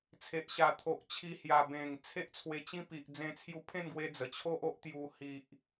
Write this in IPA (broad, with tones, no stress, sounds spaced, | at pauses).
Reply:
t͡sʰ e˨ ʔ ɕ a˨˩ t̪ʰ o˨ ʔ t͡ɕʰ i˧ h j a˨˩ b ẽ˨˩ ŋ t͡sʰ e˦ ʔ t͡sʰ w e˧ t͡ɕ ĩ˦ p i˨ ʔ d͡z ẽ˧ t͡sʰ j u˧ pʰ ẽ˥˧ n ɡ w e˧ d͡z ə˨˩ t͡ɕʰ o˦ ʔ o˦ ʔ t̪ j u˧ h i˨ ʔ